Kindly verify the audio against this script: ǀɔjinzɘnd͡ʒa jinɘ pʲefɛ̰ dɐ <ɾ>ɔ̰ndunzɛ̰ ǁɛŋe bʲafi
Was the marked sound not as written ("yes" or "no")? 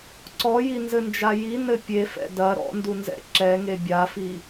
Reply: no